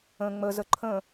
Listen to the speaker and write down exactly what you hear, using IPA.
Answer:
ə̃ ŋ͡m ə z ə ǃʰ ə̃

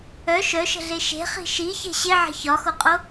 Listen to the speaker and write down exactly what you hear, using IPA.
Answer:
œ ʃ œ ʃ ə̤ ɮ e ʃ e̤ χ i̤ ʃ i ç e̤ ɕ ɪ ʕ ə̤ ç ɒ x o qʼ o

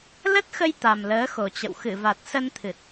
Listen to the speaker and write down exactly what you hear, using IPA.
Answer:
l ə˦˥ t̚ x ə˧ j t̪ a˨˩ m l əː˨˦ x o˨˩ t͡ɕ ə̰˧˨ w x ɨ˧˩ v a˨˩ t̚ s ə˧ n t̪ʰ ɨ˨˩ t̚

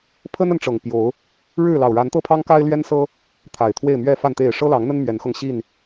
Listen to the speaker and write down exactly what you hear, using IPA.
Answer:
pʰ ə˦ n ə˨˦ n ʈ͡ʂ ɤ˨˩ ŋ p j o˨˦ ʊ̯ | ɻ ɻ̩˥˨ l ɑ˨˩ ʊ̯ ɻ a˨˦ n t̪ ɤ˦ pʰ ɑ˦ ŋ k a˦ ɪ̯ l ɥ ɛ˦ n s ɤ˦ | t̪ʰ a˨˩ ɪ̯ t̪ʰ w e˥˨ ɪ̯ m ɥ ɛ˥˨ f a˥˨ n t̪ e˥˨ ɪ̯ ʂ ɤ˦ l ɑ˨˦ ŋ n̪ ə˦ n m ɥ ɛ˨˦ n x ɤ˧ ŋ ɕ i˥˨ n

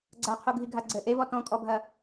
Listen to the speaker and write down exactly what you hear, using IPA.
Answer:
ɡ͡ǀ a qʰ u ɡʱ i ɡʱ a ɡ͡ǀ ɘ ʔ e v ɔ t ɔ̃ kʼ ɔ bʱ ɐ

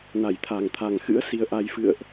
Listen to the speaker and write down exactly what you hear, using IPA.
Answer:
n a˧˩ j t̪ʰ a˨˩ ŋ t̪ʰ a˨˩ ŋ x ɨ̰˧˥ ə̯ s i˧ ə̯ ʔ a˧ j f ɨ̰˧˨ ə̯ ʔ

